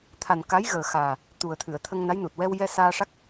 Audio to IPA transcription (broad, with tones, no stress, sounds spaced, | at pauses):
t̪ʰ a˨˩ n k a˧˥ j ɣ əː˨˩ x aː˨˩ | t̪ u˨˩ ə̯ t̪ʰ ɨ˨˩˨ ə̯ t̪ʰ ə˧ ŋ n a˧˥ j n u˨˩ t̚ w ɛ˧ w j ɛ˧ s aː˧ ʂ a˦˥ k̚